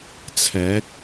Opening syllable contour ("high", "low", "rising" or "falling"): rising